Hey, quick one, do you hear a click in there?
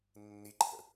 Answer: yes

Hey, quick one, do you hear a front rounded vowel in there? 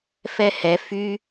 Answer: yes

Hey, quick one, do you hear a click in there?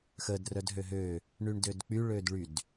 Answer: no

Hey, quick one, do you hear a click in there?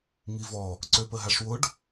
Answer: yes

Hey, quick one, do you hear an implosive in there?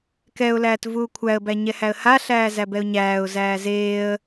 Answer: no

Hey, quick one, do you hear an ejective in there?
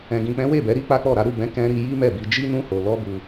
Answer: no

